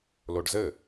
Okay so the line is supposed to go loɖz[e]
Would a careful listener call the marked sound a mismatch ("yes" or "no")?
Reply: yes